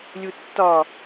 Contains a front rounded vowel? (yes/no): no